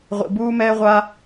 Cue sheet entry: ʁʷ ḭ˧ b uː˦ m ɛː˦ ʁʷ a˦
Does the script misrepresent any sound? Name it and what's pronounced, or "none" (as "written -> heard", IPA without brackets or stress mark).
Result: none